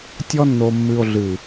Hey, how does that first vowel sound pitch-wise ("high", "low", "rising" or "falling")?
high